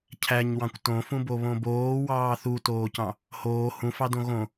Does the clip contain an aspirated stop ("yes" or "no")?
yes